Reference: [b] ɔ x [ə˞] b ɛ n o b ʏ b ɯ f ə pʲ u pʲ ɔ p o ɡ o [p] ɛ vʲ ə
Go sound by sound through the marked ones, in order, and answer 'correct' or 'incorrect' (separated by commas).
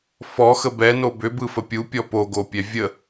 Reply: incorrect, incorrect, incorrect